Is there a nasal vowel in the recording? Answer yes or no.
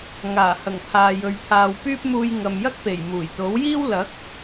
no